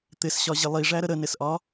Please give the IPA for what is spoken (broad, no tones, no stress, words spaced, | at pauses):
t̪ɪsɕɒʑɪ lˠiʐæɾə ɾənɪsʔɒ